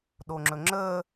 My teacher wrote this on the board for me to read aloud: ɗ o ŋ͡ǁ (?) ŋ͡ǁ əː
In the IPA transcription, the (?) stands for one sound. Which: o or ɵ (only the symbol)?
ɵ